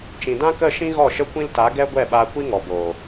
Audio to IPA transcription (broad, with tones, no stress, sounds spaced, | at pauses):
t͡ʃ ĩ˨ d ã˦ k ə˦˨ ʃ ĩ˦ ɣ ɔ˦˨ ʃ ə˦ kʷ ĩ˦ l t a˨˦ ɡ ɛ˦ ɡʷ ɛ˦˨ ɓ aː˧ kʷ i˦ ŋ ɔ˨ b oː˨